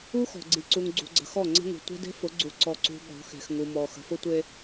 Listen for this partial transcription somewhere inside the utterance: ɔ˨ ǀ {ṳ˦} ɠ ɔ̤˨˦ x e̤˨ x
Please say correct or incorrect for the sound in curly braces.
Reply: incorrect